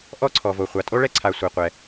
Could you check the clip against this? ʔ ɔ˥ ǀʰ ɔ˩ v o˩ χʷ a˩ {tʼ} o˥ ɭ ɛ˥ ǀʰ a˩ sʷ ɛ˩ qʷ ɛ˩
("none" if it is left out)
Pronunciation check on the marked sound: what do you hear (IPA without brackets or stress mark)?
tʼ